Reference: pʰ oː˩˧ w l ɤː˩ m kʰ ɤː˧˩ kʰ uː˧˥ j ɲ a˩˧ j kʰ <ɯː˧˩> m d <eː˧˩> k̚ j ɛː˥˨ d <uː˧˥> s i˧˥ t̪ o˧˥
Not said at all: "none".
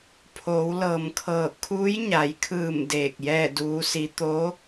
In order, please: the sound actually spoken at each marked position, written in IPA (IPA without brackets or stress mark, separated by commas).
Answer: ɯː˧˩, eː˧˩, uː˧˥